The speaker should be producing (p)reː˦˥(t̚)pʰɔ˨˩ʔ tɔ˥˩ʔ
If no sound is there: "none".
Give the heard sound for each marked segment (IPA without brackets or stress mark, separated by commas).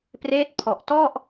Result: p, t̚